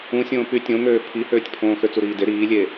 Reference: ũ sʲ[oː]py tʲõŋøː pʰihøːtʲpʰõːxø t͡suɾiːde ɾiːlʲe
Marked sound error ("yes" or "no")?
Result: yes